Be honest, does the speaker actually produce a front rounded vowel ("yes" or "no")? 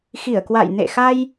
no